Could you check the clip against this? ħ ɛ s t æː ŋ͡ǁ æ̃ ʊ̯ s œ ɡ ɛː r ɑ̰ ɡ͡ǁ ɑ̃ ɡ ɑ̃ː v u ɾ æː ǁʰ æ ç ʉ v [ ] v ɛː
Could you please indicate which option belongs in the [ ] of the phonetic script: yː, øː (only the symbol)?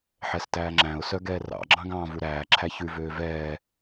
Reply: øː